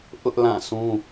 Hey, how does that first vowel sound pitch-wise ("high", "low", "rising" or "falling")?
high